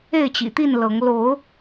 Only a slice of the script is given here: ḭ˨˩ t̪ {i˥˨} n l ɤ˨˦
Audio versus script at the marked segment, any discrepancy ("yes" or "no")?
no